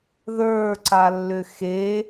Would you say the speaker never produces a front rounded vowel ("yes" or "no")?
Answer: no